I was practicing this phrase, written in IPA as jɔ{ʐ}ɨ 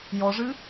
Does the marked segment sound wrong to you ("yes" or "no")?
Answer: no